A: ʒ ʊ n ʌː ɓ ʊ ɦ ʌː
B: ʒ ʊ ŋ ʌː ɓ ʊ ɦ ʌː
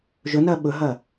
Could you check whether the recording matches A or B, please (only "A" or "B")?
A